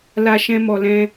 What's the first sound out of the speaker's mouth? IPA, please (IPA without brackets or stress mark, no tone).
l